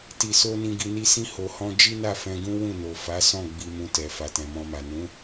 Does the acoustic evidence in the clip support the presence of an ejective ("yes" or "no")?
no